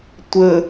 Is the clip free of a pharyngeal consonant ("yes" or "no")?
yes